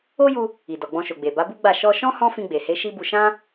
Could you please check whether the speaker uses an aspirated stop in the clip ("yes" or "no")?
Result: no